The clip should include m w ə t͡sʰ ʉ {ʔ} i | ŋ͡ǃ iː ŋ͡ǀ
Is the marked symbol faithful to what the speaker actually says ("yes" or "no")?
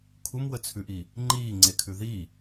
yes